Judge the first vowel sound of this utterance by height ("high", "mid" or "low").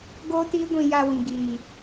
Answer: mid